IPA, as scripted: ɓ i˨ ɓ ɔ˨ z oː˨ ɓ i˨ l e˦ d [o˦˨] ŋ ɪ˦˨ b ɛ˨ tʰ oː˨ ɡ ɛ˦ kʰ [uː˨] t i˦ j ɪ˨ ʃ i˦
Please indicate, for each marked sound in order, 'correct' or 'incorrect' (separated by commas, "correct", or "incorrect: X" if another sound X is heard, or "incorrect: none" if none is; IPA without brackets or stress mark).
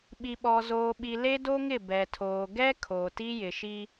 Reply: incorrect: o˦, incorrect: oː˨